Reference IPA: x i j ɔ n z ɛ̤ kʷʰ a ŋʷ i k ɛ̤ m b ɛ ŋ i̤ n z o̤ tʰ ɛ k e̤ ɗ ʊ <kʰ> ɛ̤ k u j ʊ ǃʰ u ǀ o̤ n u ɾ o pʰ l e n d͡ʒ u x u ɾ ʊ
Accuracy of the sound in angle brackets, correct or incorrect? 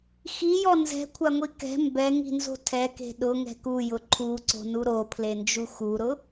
incorrect